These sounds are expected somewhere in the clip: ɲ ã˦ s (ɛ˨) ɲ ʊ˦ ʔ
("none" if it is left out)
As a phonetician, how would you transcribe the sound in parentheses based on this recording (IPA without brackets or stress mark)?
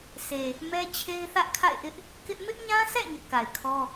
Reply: ɛ̰˦˨